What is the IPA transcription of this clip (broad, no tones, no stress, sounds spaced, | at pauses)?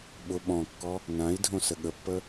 ɓ ʊ ɓ ɔ̃ kː ɔ | n ã i̯ dʱ õ s ə ɠ ə pː ə